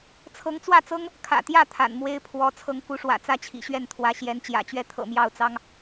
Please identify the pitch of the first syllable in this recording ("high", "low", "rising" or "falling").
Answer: rising